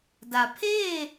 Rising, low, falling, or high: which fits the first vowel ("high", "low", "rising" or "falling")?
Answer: low